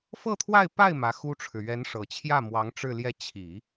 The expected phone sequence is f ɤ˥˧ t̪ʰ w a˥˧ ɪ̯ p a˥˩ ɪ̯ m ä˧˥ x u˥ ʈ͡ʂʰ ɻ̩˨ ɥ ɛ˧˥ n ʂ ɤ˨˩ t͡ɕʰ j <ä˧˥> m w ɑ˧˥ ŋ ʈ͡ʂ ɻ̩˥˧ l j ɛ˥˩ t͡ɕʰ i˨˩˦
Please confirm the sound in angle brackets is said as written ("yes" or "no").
no